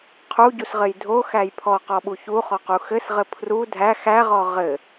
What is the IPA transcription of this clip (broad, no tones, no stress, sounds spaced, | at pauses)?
qʰ u ɟ u s ʁ ɘ j dʱ o x æ j pʰ ɔ q ɔ ɓ u ç u χ ɔ q u x ɘ s ʁ ɘ pʰ r u dʱ æ x æ ʁ ɔ ʁ ɘ